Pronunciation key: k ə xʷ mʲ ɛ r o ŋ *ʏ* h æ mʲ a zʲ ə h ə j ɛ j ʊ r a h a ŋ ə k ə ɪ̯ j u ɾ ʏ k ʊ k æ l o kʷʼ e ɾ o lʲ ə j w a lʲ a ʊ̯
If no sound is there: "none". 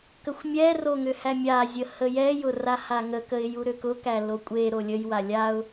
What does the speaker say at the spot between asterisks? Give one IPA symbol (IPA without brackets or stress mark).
ʏ